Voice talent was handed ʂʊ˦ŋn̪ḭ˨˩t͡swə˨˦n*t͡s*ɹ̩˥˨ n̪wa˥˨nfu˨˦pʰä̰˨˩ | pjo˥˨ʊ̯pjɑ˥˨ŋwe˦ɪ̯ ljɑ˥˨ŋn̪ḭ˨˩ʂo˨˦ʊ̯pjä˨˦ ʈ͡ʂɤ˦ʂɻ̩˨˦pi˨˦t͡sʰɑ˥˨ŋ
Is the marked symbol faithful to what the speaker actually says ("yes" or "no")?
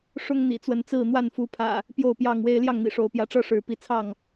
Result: yes